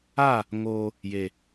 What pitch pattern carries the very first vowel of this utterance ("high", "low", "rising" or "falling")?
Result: falling